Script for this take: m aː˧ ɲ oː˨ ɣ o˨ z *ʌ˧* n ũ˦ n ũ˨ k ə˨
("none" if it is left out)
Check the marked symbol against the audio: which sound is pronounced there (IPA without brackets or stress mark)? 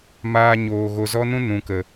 ɔ˧